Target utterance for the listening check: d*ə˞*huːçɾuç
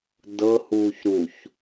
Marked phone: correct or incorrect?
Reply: incorrect